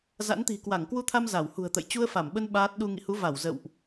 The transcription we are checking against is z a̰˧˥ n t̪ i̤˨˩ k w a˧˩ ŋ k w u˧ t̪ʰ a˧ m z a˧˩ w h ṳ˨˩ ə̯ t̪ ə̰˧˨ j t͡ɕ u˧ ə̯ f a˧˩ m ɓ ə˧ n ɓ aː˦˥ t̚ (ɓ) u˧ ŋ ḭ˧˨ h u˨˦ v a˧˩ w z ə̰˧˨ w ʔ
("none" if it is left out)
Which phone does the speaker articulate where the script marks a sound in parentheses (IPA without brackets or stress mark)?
ɗ